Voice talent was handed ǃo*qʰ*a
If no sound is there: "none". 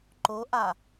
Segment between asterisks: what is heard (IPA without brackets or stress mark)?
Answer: ʔ